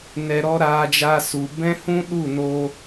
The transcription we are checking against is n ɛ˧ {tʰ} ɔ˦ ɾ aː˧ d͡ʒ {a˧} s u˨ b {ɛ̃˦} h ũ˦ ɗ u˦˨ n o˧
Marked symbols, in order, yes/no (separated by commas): no, yes, yes